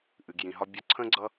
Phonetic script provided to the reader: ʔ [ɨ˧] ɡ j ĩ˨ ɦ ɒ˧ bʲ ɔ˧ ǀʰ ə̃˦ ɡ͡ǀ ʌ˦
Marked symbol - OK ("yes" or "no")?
no